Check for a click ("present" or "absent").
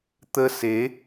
absent